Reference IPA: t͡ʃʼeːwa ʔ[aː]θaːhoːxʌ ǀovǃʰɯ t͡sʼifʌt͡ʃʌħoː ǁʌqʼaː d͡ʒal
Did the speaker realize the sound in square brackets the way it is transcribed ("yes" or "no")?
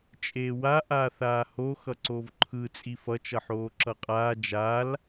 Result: yes